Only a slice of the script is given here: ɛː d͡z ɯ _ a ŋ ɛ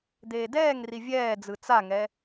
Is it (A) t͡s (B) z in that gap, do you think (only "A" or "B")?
A